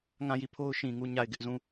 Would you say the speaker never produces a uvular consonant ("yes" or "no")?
yes